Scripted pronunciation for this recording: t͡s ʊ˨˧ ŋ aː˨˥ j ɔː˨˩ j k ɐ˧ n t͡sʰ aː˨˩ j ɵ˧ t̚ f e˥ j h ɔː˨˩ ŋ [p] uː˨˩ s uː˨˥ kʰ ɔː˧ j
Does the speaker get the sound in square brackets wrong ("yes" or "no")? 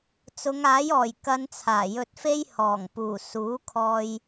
no